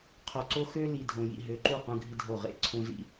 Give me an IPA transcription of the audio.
qʰ o˨ ǀ o˦ x ø˦ l i˨ dʱ õ˨ j ḭ˦˨ ɦ ø˨ ǃ u˦˨ q ũ˦ ɡʱ i˦ dʱ o˦˨ ʁ ḛ˦˨ ǀʰ õ˦ z ḭ˦

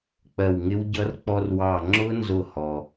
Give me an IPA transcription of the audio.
k͡p ɜ˧˩ w ŋ ɪ˦˥ w ɟ ʌ˦˥ r k͡p ɔ˧ r w ɑ˧˩ ŋ͡ǁ ʊ˦˥ n z ʊ˧˩ h ɔ˩

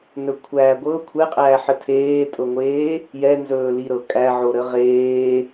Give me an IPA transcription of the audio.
n ɵ kʷʰ æː ɡʷ ɤ kʷʰ ɛ qʼ æː ħ ə tʰ eː tʼ ɤ ŋʷ eː | j ɛ n z ɵː l i ɾ ɤ kʼ æ ʕ o ɾ ə ʁ eː

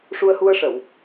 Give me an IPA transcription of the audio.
ʂ u˧ ə̯ h u˧ ə̯ ʂ ə˨˩˨ w

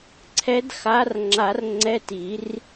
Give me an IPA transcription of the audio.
ǀʰ ɛ˨˦ d x a˨˦ r ŋ͡ǁ a˨˩˦ r ŋ͡ǀ ɛ˧˥˧ t i˨˩˦ r

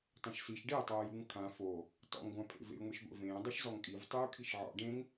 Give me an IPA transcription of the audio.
tˤ ẽ ʃ s i ʃ ɖ e tˤ ɤː j u ŋ kʰ ã f o | t ɔ̰ ŋ ɡʷ ã pʰ ḛ v ḛ j ŋʷ e ʃ ɡʷ ḛ v ẽː dˤ ɤ ʃ z ɔ ŋ kʼ i v tˤ uː kʰ i ʃ ʕ ɔ̰ ɖ ẽ ŋ

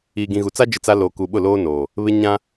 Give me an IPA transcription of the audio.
iː˨ ɡ ĩ˨ ɣ u˨ t͡s a˦ d͡ʒ ɪ˦ t͡s a˦ l oː˨ k u˨ ɓ ʊ˦˨ l oː˦ n oː˨ | β ɪ˦ ɲ ã˦

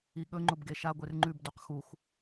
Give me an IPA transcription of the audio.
i ɠ ɵ ŋ͡ǃ o b ɡ e ʃ a ɡʷ e r ŋ͡ǃ ʉ b d u q x u x

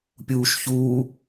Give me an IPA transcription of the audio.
pʲ uː ʃ ç uː

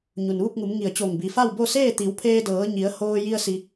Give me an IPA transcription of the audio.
ɲ u˩ n ʋ u˥˨ p̚ ŋ u˩˧ m ŋ i˧˩ ə̯ t͡ɕ o˧˩ ŋ b i˩˧ f a˥˨ w b o˥˨ s eː˥˨ t̪ i˩˧ w pʰ eː˧ d ɤː˩˧ ɲ i˩˧ ə̯ h oː˧ j i˧ ə̯ s i˧

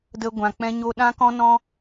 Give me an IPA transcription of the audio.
d ə˦ ɡʷ ã˧ k͡p ɛ̃˦ ɲ o˦ ɗ ã˦ k ɔ̃˦ n ɔ̃˦

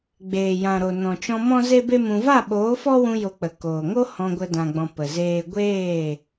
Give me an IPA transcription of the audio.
ɡ͡b eː˨ j ã˨ ɾ o˨ n ɔ̃˨ t͡ʃ ɔ̃˧ m ɔ̃˦ z e˦ b e˦ m ũ˧ v a˦˨ ɓ oː˨˦ f ɔ˦ w ũ˧ j o˧ k͡p ə˨ k oː˨ ŋ o˦ h ɔ̃˧ ɡʷ ə˧ d ã˨ ɡ͡b ɔ̃˨ p ə˨ z eː˦ ɡʷ eː˦˨

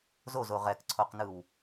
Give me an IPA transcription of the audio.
z o z o ʁ ɛ k ǀʰ o q n ɯ w

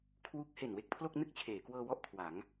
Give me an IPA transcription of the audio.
kʰ w u˦˥ k̚ h e˨˩ n w e˥˩ k̚ pʰ l o˥˩ k̚ n ɯ˥˩ k̚ t͡ɕʰ eː˩˦ k w ɤː˧ w ɔ˥˩ ʔ kʰ w a˩˦ ŋ

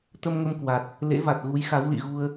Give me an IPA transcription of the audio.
t̪ ə˧ m ŋ ə˧ m k w a˨˩ t̚ | l ḛ˧˥ v a˨˩ t̚ ɣ u˨˦ j x a˨˦ w l ḭ˧˨ ɣ u˧ ə̯

